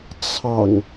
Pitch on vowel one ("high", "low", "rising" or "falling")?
low